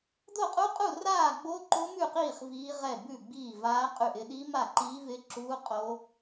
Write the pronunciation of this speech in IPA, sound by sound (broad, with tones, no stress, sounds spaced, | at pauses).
d o˥˨ qʼ u˦˥ qʼ u˥˨ r aː˥˨ ɡ͡b o˦˥ ǃ o˦˥ m ʉ˥˨ q iː˥˨ χ v iː˦˥ ʁ ɛ˥˨ b ʉ˥˨ ɡ͡b iː˥˨ v aː˦˥ qʼ ʉ˥˨ ʔ ɪ˦˥ ɗ i˦˥ m a˥˨ ǃ iː˦˥ v ɪ˦˥ ǁ uː˦˥ qʼ o˦˥